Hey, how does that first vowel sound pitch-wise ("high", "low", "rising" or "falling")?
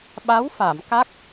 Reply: rising